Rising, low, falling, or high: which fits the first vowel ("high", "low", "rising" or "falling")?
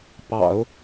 low